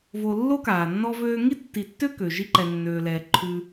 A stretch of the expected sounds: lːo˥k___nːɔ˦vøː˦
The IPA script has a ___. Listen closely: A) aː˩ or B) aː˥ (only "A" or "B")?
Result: A